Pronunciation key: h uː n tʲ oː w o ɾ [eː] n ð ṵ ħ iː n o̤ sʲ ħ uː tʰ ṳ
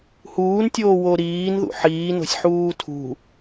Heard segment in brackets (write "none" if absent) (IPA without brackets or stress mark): iː